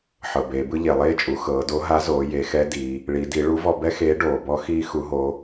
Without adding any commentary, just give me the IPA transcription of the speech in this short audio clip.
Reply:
ħɤ˩beː˩˧bɯ˥ ʎe˩lˠeː˥t͡ʃʼu˩˧ xɤː˩˧do˧˥ɦa˧˥zoː˩˧ je˩˧xɛ˧˥ diː˩˧ | ɭi˩˧di˩˧ ɭu˧˥vɔ˧ bɛ˥xeː˧˥ ɖoː˩bɔ˥ xiː˥ xu˧˥ɦoː˧˥

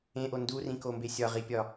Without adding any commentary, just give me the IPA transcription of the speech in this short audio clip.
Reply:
ẽʔo ndurĩkombe sʲɒʁipʲɒ

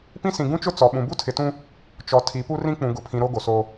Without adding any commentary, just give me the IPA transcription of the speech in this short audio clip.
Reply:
pĩ˦sĩ˨ ɡũ˦t͡ʃʊ˦ t͡sɔ˨ɓũ˨ bu˦tʰɪ˨tũ˦ | t͡ʃɔ˨ tʰi˨˦pu˦rĩ˦ k͡pũ˨ɡʊ˨pʰĩ˨ ɾo˦ɡo˨so˦

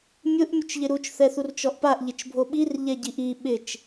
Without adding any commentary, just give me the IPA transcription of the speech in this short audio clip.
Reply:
mʲʊʔ mʲʊt͡ʃʎɪɾut͡ʃ θɛθurt͡ʃɔʔpaʔ ʎɪt͡ʃbʱoɓir ʎɛɟiʔi ɓɪt͡ʃ

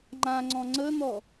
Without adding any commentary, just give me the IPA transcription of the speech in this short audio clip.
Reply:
ŋ͡ǃãŋ͡ǀɔ̃ ŋ͡ǀən̪ɔ

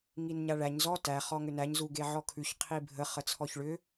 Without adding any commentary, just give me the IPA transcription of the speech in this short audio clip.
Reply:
ŋinɲaɭæɲ zɔ tæ χɔŋʏnæɲ zuɡeʕɔkʰʉç qʰibʱə χət͡sʰɔçɭʏ

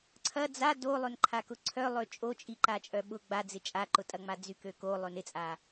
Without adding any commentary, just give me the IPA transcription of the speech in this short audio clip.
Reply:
ǀʰɐ d͡za dolˠønǃʰakʊ ǀʰœlˠø t͡ʃʼot͡ʃʼiǃat͡ʃʼœ ɓʊ ɡ͡bad͡zɪ t͡ʃʼaǃʊtʼɐŋ͡ma d͡zykøko lˠønɪt͡sʼa

